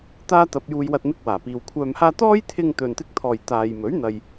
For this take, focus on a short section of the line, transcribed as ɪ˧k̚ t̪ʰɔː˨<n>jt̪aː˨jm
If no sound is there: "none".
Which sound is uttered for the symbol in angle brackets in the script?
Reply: none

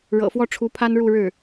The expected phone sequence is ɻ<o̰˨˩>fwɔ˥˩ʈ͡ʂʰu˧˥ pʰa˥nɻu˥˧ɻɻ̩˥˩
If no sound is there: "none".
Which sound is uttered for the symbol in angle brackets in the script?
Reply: ɤ̰˨˩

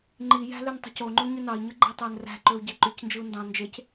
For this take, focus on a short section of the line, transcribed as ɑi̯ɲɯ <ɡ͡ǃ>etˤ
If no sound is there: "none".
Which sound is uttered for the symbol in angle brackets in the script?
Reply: ɡ͡ǃ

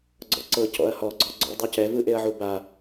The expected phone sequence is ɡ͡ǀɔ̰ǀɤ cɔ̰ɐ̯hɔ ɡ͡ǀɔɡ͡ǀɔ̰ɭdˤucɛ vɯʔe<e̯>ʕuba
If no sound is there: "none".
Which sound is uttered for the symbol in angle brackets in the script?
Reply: ɐ̯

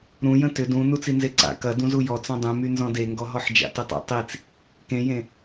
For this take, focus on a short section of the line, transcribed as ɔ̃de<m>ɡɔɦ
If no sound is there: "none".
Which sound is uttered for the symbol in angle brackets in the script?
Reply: ŋ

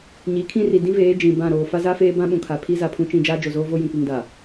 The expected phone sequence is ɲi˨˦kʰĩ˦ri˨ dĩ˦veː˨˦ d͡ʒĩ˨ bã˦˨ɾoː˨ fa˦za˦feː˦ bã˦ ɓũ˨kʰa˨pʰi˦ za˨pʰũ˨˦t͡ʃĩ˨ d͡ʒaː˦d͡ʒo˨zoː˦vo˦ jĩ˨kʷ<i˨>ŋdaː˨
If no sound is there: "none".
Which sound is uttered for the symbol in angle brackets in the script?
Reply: i˨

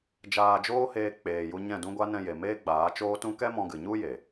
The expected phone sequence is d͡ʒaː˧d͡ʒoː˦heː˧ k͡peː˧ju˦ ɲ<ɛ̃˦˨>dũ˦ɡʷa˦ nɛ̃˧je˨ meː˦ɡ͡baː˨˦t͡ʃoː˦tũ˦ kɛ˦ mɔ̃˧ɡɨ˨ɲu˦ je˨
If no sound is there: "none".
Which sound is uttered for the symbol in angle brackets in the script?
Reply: ɛ̃˦˨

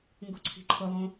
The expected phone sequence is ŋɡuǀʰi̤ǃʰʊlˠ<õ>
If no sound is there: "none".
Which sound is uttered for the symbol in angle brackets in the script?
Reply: õ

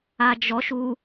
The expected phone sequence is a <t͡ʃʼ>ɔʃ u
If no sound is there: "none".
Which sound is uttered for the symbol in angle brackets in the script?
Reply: d͡ʒ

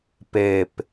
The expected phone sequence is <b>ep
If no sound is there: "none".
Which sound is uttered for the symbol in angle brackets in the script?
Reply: p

